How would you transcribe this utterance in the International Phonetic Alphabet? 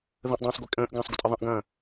ð ə̃ ʔ dˤ ɐ̃ː sˤ ɡʷ i kʼ ə̃ː ʔ ɡ ɐ̃ː sˤ ɡʷ ə̰ tʼ ə ðˤ ə̃ ʔ ɡ ɐ̃ː

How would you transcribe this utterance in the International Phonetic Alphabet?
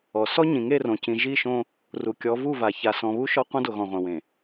ɔ˨ s ɔ˦ ɲ ĩ˨ ŋ e˦˨ r õ˨ c ĩ˨ ʒ i˦˨ ʃ õ˦ | r u˨ kʲ ɔ˨˦ v u˦˨ v a˨ ç a˨ s ɔ̃˨ β u˦ ʃ ɔ˦ qʷ ɐ̃˦ d o˨ ɣ ɔ̃˨ ʁʷ ɐ̃˨ w ẽ˨

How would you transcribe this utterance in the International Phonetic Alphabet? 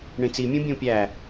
ɳ ẽ t͡s i mʲ ũ bʲ õ pʲ æ

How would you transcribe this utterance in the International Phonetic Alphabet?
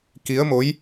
k i˨˦ ə̯ m o˨˦ j

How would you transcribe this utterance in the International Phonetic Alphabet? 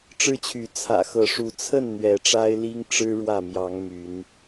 ʈ͡ʂ ɻ̩˦ t͡ɕʰ y˨˦ t͡sʰ ä̰˨˩ x ɤ˨˦ ʂ u˨˦ t͡sʰ ə˥˨ n n̪ ɥ ɛ˨˦ ʈ͡ʂ a˦ ɪ̯ l i˦ ŋ ʈ͡ʂ ɻ̩˦ ɻ w ä˥˨ m j ɑ˨˦ ŋ m y˨˦ n

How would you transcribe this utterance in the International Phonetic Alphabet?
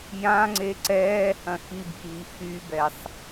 j ã ŋ͡ǀ e ǀ ɛː h ɐ̃ x i b ɠ iː x y b ɛ sˤ

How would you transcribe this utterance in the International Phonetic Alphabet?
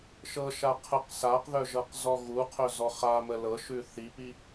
ʃ ɤ ʃ a qʰ ə q s a q ð œ ʒ ɤ q z ɔ ɣ u qʰ œ z ɔ χ a m ə l ɤ ʃ ʉ θ i p i

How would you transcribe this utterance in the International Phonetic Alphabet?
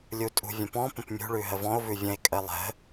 lʲ u tʼ ṳ vʲ ə̃ p ɔ̃ p ə̃ p mʲ ṳ ɭ ʉ ɦ ə v ɔ̃ o̯ v ʉ vʲ ə̃ e̯ kʼ ə lˠ ə̤

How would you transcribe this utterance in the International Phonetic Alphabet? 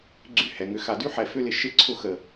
ɡ͡ǀ y˧ h ɛ˨ ŋ ʏ˨˦ x a˨ d y˦ ħ ɛ˨ f ʏ˦ l ɪ˧ ʃ ɪ˦ ǀʰ ʊ˦˨ x ə˨

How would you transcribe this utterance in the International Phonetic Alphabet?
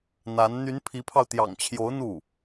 n̪ a˧˥ n n̪ y˧˥ n pʰ i˧˥ pʰ ɑ˧ ʊ̯ t̪ j ɑ̰˨˩ ŋ t͡ɕʰ j o˧˥ ʊ̯ n̪ u˥˩

